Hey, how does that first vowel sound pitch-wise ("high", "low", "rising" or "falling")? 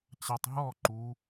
low